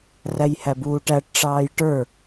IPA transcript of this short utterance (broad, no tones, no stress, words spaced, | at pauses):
ræjhæbuːʈæʈ ʈ͡ʂɑːjʈə˞